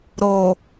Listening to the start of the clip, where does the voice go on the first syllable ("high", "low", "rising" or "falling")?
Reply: low